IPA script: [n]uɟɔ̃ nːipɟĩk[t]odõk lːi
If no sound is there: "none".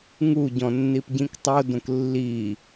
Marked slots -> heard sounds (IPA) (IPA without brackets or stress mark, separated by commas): ŋ, tˤ